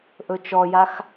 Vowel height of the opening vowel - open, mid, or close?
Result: mid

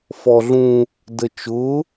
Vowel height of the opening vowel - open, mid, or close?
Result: mid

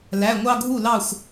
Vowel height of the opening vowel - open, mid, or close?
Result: open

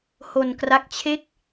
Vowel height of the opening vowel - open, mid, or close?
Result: mid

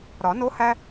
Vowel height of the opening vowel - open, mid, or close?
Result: open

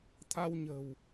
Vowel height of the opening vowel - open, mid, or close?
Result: open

